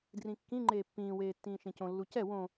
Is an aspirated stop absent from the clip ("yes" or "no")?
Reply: yes